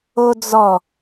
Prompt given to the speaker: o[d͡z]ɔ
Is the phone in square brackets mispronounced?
no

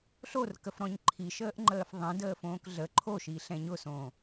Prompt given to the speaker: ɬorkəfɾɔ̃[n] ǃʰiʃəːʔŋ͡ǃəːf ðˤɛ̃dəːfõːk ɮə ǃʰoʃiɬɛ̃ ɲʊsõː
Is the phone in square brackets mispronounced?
yes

